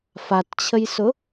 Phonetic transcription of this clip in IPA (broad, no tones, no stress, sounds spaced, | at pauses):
f a t t͡ɕʰ ə j s ʊ